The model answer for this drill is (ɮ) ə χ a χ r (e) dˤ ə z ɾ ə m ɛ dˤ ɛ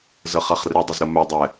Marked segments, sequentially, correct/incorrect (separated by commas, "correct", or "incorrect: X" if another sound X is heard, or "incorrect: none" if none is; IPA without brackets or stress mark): incorrect: z, correct